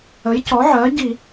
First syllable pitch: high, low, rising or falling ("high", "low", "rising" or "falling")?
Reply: rising